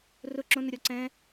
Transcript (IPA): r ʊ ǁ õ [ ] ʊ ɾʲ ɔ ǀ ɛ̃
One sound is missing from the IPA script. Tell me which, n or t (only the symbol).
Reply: n